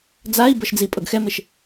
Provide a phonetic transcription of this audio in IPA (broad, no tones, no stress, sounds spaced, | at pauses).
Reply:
d͡z a i̯ b ɤ ʃ d͡z i pʼ ɤ ɡ x ɛ m e ʃ